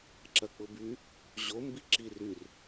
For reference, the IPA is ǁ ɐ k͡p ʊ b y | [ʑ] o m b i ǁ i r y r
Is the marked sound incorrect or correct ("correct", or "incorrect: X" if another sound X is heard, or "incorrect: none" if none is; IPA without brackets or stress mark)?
correct